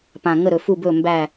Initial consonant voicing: voiceless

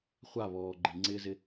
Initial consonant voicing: voiceless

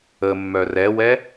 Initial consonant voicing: voiced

